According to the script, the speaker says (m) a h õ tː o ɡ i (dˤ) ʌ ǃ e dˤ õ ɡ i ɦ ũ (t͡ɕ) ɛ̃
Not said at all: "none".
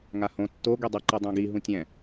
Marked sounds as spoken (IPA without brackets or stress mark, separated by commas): ŋ, dˤ, tʲ